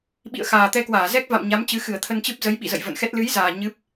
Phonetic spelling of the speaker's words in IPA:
ɓ ḭ˧˨ ə̯ x aː˨˩ t̪ ɛ˧ k w aː˧˩ z ɛ˦˥ k̚ v a̰˧˨ m ɲ a˨˦ m t͡ɕ ɨ˨˦ x ɨ˧˩ ə̯ t̪ʰ ə˧ n t͡ɕ ɨ˦˥ p̚ z ə˨˦ j ɓ ḭ˧˨ z ə̰˧˨ j v ə̰˧˨ n x ɛ˦˥ t̚ l ɨ˨˦ j z aː˨˩ ɲ ɨ˦˥ p̚

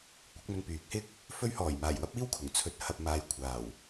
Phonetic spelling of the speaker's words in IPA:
kʷ ɐ˨˥ k̚ m ɵ˧ n p yː˨˥ k̚ h ɪ˥ k̚ | f ɵ˧ ɥ h ɔː˨˩ j m aː˨˩ j w ɐ˥ p̚ iː˥ w kʰ ʊ˨˩ ŋ t͡sʰ ɵ˨˥ t̚ h ɐ˨ p̚ m aː˨ j kʷʰ aː˨˩ w

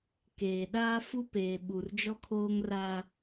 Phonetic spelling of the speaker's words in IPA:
k eː˨ ɗ aː˦ f u˦ p eː˨ ɓ u˨ r d͡ʒ ɔ˦ kʰ oː˦ ŋ r a˦

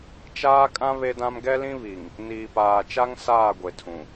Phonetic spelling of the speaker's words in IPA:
t͡ʃ aː˦ kʼ ã˦ β e˦ d ã˦ m ɡ ɛ˦ l ĩ˦ β i˨ ŋ | n iː˨ p aː˨ t͡ʃ a˦ ŋ s aː˦˨ ɡʷ e˨ tʰ ũ˨

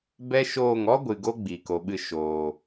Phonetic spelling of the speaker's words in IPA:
b ɛ˦ ʃ oː˦˨ ŋ ɔ˦ ɡʷ ɨ˨ ɡ o˧ ɡ͡b iː˨ k o˨ ɓ ɨ˦˨ ʃ oː˨

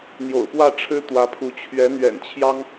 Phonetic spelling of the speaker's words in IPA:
n̪ j o̰˨˩ ʊ̯ p w ä˥˩ ʈ͡ʂʰ ɻ̩˥ t̪ w ä˧˥ pʰ u˧˥ t͡ɕʰ ɥ ɛ˧˥ n̪ ɥ ɛ̰˨˩ n t͡ɕʰ j ɑ˥ ŋ

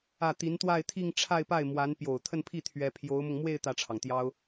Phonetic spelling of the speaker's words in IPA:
ä˥˩ t̪ i˧˥ n t̪ w a˥˧ ɪ̯ t̪ʰ i˥˧ ŋ ʈ͡ʂʰ a˥˧ ɪ̯ p a˥˩ ɪ̯ m w a˧˥ n p j o˨˩ ʊ̯ t̪ʰ ə˥˧ n pʰ i˥˩ t̪ʰ ɥ ɛ˥ pʰ j o˧˥ ʊ̯ m ʊ˧ ŋ m w e˥˧ ɪ̯ t̪ ä˥˩ ʈ͡ʂʰ ɑ˩ ŋ t̪ j ɑ˥ ʊ̯

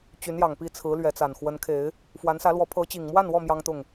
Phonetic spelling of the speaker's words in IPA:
t͡ɕ y˨˦ n j ɑ˨˩ ŋ p i˥˨ t͡sʰ ɹ̩˨˦ l ɥ ɛ˨˦ t͡s a˨˩ n x w ə˨˦ n kʰ e˨˦ ɪ̯ | f w a˨˦ n s ä˨˦ l w ɔ˨˦ pʰ ɤ˨˦ t͡ɕ i˨˩ ŋ m w a˥˨ n w ɔ˥˨ m j ɑ˦ ŋ t̪ ʊ˥˨ ŋ

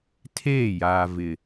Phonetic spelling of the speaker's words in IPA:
tʰ eː˦˨ j aː˨ v ɪ˨

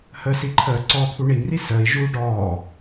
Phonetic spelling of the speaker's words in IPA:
h ə s i ǃʰ əː ǀ ɔ t̪ʰ u ɳ i ŋ r i s əː i̯ ʒ uː ɖ ɔː

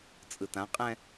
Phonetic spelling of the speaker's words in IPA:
t͡sʼ ɯ t ã qʼ ɛ̃

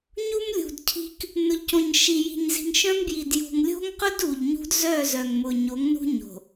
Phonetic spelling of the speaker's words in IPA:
ɲ u˦ m lʲ ṳ˨ d cʰ i̤˦ k | n ʊ˨ ʎ c õ˨ ɲ ʃ i˨ j i̤˨ ɲ z i̤˨ ŋ ʃ œ̃˦ m b j i˨ d j ṳ˨ ŋ lʲ o̤˦ ŋ q ʊ˦ d u˨ ʎ ɲ ṳ˦ d z œ˦˨ z œ˨ ŋ m ʊ˨ ɲ o˨˦ ŋ n ṳ˦ ɲ o̤˨

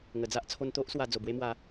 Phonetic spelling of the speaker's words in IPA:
ŋ ə˨˩ d͡z a˦ ʔ t͡sʰ o˧ n t̪ o˦ ʔ s w a˧ d͡z o˨˩ b w e˧ m w a˨˦

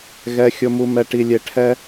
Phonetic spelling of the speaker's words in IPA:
ɣ ɛ˦ xʲ ʊ˦ m u˦ m ɛ˦ ʈ i˧ lʲ e˧ ʈʰ ɛ˦

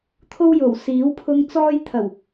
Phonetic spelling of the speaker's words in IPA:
t̪ʰ o˥ w j o˨˩ w s iː˨˥ w pʰ ʊ˧ ŋ t͡s ɔː˥ j t̪ʰ ɐ˨˩ w

